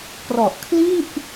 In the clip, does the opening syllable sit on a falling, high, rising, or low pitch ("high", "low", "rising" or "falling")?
low